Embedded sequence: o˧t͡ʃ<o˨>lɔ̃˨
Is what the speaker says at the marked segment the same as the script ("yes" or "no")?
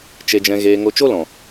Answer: no